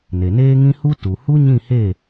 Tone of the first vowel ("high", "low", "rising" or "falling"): low